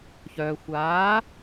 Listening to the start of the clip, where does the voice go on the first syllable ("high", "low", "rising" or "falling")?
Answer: low